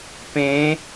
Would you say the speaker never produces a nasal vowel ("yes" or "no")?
no